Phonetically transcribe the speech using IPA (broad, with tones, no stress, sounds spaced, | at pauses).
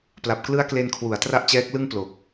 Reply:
p l a˨˩ p̚ k l ɯ˦˥ a̯ k l e˧ n kʰ w u˨˩ a̯ t r a˥˩ ʔ t͡ɕ ɛː˦˥ k̚ l ɯ˥˩ ŋ p l o˨˩ k̚